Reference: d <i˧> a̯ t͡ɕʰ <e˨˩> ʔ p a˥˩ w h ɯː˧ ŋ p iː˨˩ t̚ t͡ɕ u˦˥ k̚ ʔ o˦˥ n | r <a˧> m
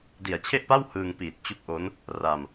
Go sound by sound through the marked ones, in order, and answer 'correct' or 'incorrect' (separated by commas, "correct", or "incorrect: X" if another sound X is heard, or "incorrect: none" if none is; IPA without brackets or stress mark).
incorrect: i˩˦, incorrect: e˥˩, correct